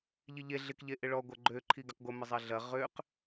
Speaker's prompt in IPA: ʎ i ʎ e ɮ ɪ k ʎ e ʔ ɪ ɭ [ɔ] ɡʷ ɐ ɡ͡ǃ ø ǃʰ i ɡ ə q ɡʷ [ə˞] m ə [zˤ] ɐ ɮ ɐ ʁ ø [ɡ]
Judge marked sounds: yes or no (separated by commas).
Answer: yes, no, yes, no